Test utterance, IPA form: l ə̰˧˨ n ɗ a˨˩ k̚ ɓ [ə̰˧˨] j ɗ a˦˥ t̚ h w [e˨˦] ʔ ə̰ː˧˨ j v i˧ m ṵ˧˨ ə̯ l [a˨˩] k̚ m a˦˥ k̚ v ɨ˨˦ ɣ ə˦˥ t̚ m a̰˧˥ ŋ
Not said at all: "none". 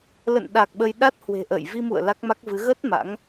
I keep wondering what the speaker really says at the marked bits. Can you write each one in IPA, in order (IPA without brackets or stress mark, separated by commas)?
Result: ə˧, e̤˨˩, a˦˥